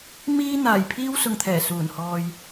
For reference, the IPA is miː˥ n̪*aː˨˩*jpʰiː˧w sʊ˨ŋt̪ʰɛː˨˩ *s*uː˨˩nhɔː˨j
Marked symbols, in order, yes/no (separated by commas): yes, yes